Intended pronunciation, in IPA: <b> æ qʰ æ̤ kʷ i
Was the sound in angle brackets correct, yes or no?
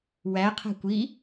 no